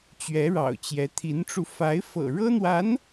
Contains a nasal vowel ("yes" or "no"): no